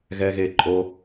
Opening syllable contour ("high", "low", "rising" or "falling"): high